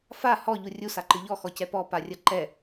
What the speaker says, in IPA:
f a h ɔ ʎ u rʲ u s a ǃ ɨ ʎ ɔ x ɔ c ɛ p ɔ p a rʲ ɐ ǃ ɛ

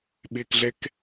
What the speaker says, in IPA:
ɓ ɪː k ɮ ɛ k

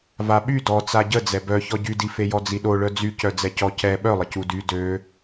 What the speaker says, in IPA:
v a ɓ y d ɔ t͡s a ɟ ə d͡z ɛ b œ ç ɔ ɟ y d i f e j ɔ d͡z i ɗ o ɭ œ d͡z y c œ d͡z ɛ c ɔ c ɛ ɓ œ lˠ ə c u d y d ø

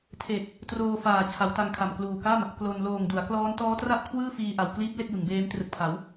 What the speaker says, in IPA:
tʰ e˨˩ k̚ | t r oː˧ f aː˨˩ t͡ɕʰ a˩˦ w t a˧ ŋ kʰ a˨˩ m k l uː˨˩ k a˥˩ m | k l o˧ n l oː˨˩ ŋ d u˩˦ a̯ k l ɔː˦˥ n t ɔː˦˥ t r a˥˩ ʔ kʰ w ɯː˥˩ f iː˧ ʔ a˨˩ w k l iː˦˥ p̚ l e˥˩ k̚ j ɯ˩˦ ŋ b eː˦˥ m t r ɯ˨˩ k̚ pʰ a˩˦ w

